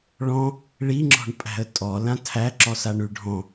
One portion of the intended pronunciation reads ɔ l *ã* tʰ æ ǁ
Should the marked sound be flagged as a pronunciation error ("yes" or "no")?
no